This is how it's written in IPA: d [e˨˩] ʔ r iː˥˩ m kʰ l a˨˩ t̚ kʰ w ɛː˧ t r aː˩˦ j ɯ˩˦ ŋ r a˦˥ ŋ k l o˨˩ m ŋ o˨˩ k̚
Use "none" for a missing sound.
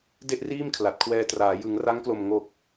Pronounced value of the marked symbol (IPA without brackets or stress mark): e˥˩